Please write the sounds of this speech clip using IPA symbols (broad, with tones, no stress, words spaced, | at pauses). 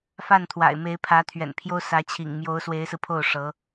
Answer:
fa˥˩nt̪ʰwa̰˨˩ɪ̯me˧˥ɪ̯ pʰä˧˥t̪ʰɥɛ̰˨˩npʰjo˥ʊ̯ sä˧˥t͡ɕʰḭ˨˩ŋ mjo˧˥ʊ̯swe˧˥ɪ̯sɹ̩˧pʰo˥˩ʊ̯ ʂɤ˧˥